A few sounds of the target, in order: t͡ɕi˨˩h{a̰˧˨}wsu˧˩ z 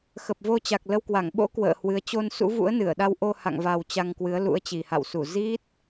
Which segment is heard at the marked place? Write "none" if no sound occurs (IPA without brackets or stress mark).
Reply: a̰˧˨